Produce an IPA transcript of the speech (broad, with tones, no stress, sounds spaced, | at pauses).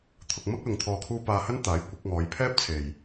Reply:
t̪ʰ ʊ˧ k̚ m ɐ˥ k̚ l ʊ˨ ŋ t̪ʰ ɔː˨ kʰ uː˧ p aː˧ h ɐ˥ n t̪ aː˨˥ j kʷ ɪ˨˥ k̚ ŋ ɔː˨˧ j pʰ ɛː˥ p̚ t͡sʰ e˨ j